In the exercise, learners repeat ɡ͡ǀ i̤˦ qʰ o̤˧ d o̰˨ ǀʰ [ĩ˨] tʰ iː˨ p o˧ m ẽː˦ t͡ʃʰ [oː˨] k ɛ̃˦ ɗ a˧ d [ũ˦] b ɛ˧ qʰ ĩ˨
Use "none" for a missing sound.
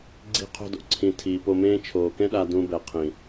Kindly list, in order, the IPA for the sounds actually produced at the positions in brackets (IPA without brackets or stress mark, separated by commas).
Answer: ĩ˨, oː˨, ũ˦